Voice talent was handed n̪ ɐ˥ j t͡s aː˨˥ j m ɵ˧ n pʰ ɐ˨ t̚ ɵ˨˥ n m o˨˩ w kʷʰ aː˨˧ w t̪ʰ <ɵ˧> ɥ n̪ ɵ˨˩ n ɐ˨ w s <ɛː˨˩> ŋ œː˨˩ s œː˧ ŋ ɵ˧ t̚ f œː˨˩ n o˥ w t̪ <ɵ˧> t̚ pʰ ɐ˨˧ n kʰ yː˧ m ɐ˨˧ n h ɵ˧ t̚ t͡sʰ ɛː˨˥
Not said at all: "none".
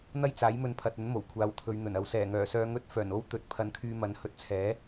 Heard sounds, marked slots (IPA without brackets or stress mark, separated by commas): ɵ˨˧, ɛː˨˩, ɵ˧